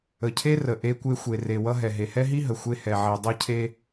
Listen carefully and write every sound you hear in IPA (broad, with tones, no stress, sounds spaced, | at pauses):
ə˩ cʰ e˥ r ə˩ ʔ e˧ kʷ e˧ xʷ e˩ r e˩ w ʌ˧ ɦ ɛ˩ ɦ e˩ h ɛ˥ ɦ i˥ ɦ ə˩ xʷ e˧ h ɛ˩ ʕ i˩ dˤ ʌ˥ cʰ e˥